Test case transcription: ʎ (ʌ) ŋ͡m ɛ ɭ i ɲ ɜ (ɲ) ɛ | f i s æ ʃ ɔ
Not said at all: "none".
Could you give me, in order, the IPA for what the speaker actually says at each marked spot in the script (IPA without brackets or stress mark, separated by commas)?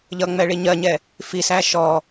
ʌ, ɲ